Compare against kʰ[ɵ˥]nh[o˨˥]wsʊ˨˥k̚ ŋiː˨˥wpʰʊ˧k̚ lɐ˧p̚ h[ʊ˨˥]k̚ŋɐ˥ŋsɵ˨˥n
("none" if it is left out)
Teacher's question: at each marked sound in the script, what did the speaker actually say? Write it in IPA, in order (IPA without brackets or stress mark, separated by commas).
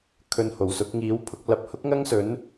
ɵ˧, o˨˩, ʊ˥